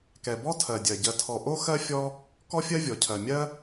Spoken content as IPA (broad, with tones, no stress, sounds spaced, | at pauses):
k ɛ˩ b ɔ˥ tʰ ɜ˩ dʲ ɜ˩ ɟ ɜ˨ tʰ ɔ˨ ʔ o˥ x ɜ˥ fʲ ɔ˦ | k ɔ˥ fʲ ɜ˥ vʲ ɔ˩ cʰ ɜ˩ mʲ ɜ˦